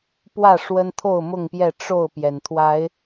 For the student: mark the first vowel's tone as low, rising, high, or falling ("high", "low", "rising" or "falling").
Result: falling